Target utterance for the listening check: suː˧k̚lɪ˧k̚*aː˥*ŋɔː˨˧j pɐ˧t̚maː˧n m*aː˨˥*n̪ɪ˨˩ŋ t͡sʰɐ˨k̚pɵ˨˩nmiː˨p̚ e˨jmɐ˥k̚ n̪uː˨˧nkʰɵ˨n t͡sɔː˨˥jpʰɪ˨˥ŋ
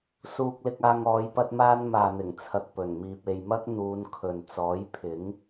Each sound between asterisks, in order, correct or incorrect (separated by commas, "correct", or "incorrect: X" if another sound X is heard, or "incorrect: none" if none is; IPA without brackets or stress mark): incorrect: aː˧, incorrect: aː˨